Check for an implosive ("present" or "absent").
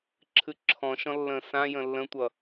absent